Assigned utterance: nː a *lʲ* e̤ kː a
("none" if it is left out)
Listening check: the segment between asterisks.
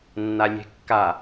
lʲ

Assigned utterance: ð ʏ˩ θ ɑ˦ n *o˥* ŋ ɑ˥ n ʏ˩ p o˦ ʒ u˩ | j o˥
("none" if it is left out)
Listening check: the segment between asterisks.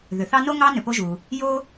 o˥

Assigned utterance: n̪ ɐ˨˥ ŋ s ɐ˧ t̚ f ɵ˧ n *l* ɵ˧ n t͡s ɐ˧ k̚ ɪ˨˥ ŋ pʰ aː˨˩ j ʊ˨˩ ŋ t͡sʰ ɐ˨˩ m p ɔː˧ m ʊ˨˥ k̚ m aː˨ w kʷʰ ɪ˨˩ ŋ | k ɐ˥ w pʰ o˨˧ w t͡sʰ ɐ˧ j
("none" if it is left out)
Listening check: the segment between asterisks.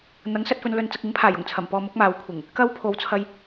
l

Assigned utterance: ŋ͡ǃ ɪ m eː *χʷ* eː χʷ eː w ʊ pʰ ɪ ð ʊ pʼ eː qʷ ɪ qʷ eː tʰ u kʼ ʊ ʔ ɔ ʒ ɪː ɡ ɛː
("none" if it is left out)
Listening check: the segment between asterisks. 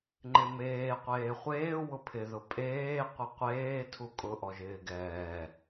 qʷ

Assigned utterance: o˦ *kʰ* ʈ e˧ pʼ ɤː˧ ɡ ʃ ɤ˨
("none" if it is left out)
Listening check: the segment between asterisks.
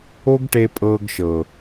ɡ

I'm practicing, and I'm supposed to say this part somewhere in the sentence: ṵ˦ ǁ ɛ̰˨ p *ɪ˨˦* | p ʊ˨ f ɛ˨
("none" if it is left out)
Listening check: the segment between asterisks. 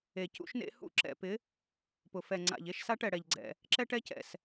ɪ˨˦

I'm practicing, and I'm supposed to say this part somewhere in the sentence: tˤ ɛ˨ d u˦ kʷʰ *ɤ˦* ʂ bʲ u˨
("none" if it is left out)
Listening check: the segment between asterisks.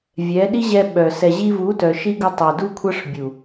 ɤ˦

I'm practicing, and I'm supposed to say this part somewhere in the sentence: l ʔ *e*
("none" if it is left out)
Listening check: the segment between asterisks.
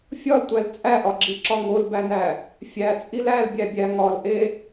e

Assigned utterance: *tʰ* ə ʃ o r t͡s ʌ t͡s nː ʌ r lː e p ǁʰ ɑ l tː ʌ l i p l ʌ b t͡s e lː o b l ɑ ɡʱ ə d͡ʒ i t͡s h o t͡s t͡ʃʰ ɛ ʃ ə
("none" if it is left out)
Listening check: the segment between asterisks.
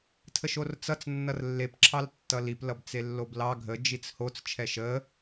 tʰ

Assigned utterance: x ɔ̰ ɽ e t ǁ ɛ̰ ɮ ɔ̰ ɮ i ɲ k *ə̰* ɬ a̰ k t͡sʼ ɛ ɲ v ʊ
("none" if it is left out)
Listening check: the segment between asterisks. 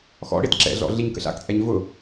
ə̰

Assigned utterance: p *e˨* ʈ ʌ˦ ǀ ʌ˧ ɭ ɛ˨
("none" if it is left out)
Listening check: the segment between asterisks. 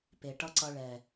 e˨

